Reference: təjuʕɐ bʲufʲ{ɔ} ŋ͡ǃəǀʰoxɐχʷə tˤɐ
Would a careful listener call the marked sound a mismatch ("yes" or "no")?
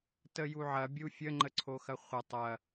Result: yes